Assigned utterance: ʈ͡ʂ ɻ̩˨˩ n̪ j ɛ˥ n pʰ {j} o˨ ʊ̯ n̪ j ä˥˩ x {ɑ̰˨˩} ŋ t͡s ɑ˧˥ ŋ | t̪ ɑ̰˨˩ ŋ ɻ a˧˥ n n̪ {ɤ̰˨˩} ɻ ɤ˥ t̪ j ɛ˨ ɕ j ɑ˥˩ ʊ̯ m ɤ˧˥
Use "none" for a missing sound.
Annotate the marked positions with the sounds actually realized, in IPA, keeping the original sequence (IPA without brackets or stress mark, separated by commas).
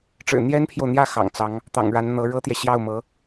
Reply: j, ɑ̰˨˩, ɤ˧˥